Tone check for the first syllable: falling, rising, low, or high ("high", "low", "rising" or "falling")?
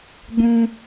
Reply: high